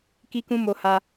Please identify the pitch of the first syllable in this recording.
high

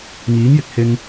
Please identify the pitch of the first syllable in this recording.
rising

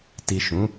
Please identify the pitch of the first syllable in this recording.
low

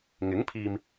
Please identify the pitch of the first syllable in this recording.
rising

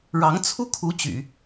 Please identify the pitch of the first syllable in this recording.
rising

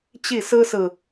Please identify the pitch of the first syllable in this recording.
falling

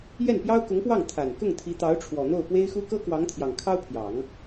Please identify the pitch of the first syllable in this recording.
falling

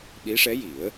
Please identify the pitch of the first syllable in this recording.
rising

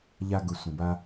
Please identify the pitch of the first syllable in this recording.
high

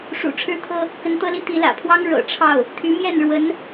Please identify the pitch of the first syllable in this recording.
low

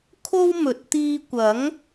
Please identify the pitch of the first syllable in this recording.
high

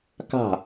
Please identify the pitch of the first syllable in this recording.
falling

